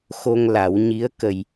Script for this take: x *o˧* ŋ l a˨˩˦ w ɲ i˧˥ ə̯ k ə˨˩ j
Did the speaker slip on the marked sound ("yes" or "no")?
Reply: no